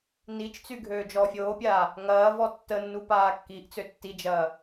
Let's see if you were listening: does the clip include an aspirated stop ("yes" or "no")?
no